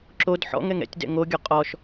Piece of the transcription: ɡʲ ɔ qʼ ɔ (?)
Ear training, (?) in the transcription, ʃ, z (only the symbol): ʃ